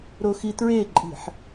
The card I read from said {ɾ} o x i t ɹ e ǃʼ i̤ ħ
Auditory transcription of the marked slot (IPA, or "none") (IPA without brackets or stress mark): ɾ